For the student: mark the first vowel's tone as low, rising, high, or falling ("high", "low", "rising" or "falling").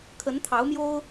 rising